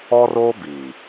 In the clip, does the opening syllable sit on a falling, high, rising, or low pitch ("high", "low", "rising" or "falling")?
high